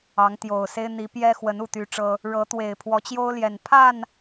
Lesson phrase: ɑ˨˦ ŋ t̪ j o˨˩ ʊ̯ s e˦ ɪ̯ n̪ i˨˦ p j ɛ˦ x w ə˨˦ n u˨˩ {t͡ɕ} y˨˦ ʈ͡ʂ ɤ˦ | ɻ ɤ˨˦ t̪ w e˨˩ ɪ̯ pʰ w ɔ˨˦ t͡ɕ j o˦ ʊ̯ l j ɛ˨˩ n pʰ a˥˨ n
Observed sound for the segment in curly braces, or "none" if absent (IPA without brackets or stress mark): t̪